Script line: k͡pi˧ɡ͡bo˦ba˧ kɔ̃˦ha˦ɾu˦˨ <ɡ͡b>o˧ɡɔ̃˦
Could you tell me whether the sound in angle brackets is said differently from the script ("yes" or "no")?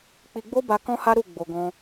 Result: no